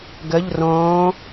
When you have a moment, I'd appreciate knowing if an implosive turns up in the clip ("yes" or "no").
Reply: no